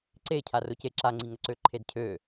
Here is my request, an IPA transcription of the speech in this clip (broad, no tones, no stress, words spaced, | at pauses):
ǀe cʰarʊce ǁaŋ͡ǀiŋəǀø ǃʰedcʰø